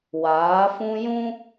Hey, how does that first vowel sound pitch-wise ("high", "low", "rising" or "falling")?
rising